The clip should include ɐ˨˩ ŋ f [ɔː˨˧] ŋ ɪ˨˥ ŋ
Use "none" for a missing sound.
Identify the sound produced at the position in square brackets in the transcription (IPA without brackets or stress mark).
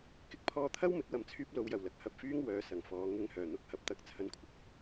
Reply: ɔː˨˧